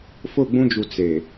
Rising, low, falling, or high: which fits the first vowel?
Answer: falling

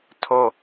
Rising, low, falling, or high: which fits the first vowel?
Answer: high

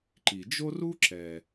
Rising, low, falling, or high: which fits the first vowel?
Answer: low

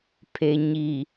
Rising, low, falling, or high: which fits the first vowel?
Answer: low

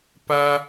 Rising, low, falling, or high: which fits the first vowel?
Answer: high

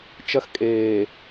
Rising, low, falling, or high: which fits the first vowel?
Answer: high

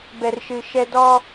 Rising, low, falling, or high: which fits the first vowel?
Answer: low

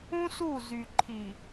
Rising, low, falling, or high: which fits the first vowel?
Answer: high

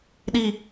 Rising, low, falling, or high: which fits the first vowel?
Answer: low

